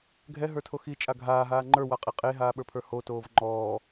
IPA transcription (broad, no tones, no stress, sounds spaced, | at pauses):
ɡʱ ɛ ɦ ə˞ tʰ o x i t͡ʃʼ a ɡʱ aː ɦ aː ŋ͡ǃ ə˞ w a qʼ i qʼ e ɦ aː ɓ ə˞ pʰ ə˞ h o t oː v ŋ͡ǃ ɔː